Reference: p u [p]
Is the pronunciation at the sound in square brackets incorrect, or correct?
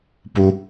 incorrect